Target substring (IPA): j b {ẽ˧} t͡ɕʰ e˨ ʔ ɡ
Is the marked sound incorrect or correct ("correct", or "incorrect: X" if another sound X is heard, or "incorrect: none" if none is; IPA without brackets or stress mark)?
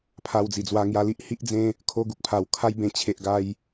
correct